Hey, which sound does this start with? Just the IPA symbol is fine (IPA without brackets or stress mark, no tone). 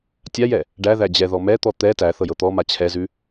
tʲ